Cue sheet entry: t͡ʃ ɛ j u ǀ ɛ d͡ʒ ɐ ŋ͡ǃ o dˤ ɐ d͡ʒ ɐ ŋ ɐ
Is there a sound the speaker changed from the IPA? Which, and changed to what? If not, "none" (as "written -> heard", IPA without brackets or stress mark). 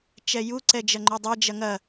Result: none